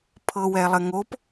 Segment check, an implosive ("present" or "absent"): absent